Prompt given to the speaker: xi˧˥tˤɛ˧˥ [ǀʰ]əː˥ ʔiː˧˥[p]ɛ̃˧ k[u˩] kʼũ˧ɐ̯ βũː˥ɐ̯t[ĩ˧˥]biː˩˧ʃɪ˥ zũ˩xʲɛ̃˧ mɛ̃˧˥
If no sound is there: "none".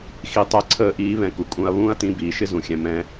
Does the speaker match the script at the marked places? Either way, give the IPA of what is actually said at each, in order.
ǀʰ, β, u˩, ĩ˧˥

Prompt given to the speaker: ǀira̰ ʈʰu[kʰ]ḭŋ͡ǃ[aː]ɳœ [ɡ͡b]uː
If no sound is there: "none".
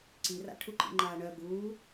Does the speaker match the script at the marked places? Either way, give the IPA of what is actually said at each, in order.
ǃ, aː, ɡ

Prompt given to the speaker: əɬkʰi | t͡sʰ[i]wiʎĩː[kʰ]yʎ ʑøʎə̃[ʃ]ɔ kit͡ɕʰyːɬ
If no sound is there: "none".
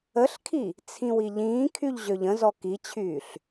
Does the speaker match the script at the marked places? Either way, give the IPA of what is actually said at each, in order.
ĩ, kʰ, z

